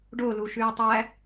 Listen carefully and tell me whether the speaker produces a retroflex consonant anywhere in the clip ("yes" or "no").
yes